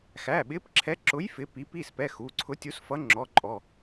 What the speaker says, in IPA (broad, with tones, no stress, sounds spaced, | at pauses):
x æ˩˧˩ ɓ ɪ˨˥ p ǁʰ ɛ˨˥ ǁ ʊ˨˥ j f ɪ˨˥ p i˨˥ p i˩˧˩ s p ɛ˩˧˩ x u˩˧˩ ǀʰ ʊ˨˥ tʲ u˨˥ s f ʌ˨˥ ŋ͡ǁ ɔ˩˧˩ ǃʼ ɔ˩˧˩